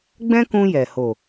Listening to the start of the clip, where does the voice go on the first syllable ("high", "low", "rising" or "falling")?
high